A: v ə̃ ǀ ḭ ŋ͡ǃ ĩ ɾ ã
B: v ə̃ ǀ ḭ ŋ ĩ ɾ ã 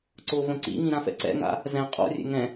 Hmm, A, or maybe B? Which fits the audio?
B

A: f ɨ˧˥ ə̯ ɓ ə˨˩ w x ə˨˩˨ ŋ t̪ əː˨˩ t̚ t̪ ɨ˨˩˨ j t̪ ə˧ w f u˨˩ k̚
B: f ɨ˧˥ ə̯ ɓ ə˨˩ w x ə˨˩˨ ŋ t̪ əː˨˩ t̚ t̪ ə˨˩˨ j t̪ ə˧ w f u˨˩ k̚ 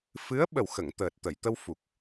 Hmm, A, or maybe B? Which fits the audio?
B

